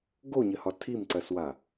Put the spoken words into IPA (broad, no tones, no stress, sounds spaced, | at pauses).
ɡ o ɲ ɘ h ɒ tʰ i m ǀ ɜ s w a